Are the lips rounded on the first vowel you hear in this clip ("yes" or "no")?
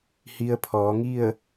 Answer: no